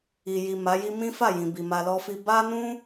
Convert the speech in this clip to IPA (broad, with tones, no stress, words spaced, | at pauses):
i˨ji˨ ma˨˦ji˦ mĩ˦ fa˦˨jĩ˨bi˨ ma˧lɔ˦fi˦ ba˦nũ˦